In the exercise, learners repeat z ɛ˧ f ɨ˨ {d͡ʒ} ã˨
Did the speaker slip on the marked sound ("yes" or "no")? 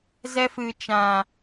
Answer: yes